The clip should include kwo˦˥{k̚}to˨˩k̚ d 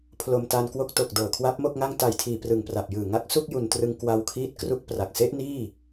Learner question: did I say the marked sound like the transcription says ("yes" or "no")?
yes